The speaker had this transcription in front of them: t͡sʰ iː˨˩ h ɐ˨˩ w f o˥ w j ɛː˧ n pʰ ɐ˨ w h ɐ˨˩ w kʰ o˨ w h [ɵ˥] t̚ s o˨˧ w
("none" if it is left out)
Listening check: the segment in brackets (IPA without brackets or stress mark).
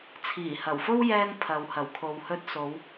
ɵ˧